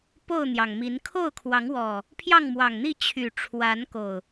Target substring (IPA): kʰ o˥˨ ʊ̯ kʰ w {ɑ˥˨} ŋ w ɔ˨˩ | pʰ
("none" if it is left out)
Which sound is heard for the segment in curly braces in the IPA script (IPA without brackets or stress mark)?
ɑ˨˦